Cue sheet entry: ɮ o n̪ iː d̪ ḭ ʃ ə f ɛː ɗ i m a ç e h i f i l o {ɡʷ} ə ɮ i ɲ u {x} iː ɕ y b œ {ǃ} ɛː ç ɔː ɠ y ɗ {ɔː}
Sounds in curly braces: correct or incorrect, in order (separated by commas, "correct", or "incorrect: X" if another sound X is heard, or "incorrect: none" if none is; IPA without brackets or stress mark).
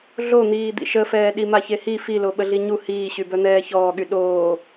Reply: incorrect: ɓ, incorrect: h, incorrect: n̪, incorrect: oː